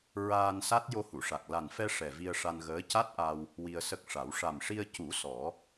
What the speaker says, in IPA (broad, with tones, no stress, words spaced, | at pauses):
ɹaː˧nsa˦˥t̚ jo˧hu˨˩˨ʂa˨˩k̚ la˨˩nfɛ˧ ʂɛ˨˩vi˧ə̯ʂa˧nɣəː˧˥ ca˦˥t̚ʔa˧w | wi˧ə̯sə˦˥k̚ʂa˨˩˦w ʂa˨˩mʂi˧ə̯cu˨˩˦ sɔ˨˩˦